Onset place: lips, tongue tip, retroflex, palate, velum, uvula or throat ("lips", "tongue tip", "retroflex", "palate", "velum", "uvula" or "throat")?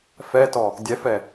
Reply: lips